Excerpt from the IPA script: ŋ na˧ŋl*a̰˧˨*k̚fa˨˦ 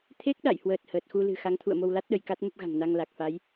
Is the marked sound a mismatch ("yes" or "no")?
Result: yes